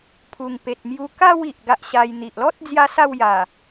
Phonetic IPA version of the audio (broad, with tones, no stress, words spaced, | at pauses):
pʰu˨˩ŋpe˨t̚mju˧ ka˥˧w i˨ʔɡa˦ʔɕa˧jn̪i˨ʔ lɔ˦t̚ d͡zja˦sa˥˧wja˨˩